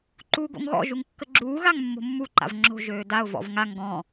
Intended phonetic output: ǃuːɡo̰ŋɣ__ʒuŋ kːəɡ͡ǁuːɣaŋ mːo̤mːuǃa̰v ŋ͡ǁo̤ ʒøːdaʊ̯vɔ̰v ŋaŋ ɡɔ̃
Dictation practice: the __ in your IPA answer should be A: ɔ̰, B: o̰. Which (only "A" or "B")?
A